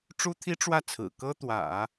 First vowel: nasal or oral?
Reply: oral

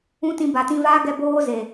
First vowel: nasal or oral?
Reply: nasal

